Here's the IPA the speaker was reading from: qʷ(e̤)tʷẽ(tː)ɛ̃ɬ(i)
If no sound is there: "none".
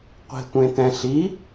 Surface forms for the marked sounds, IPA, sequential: e̤, t, i

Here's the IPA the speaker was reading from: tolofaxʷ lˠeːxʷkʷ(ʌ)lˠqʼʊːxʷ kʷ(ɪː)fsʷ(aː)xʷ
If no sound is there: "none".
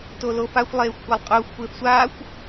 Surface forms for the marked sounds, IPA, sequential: a, ɪː, aː

